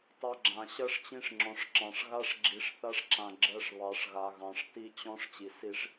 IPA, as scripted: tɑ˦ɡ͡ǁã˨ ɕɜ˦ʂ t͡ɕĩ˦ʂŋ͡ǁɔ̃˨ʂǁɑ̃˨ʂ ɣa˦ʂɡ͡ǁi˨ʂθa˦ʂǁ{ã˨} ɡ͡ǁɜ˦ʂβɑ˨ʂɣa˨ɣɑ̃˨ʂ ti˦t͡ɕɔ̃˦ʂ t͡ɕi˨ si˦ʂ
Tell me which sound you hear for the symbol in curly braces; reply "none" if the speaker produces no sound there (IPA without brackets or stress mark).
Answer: ã˨